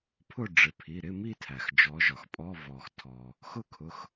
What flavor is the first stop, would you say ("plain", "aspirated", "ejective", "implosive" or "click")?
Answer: aspirated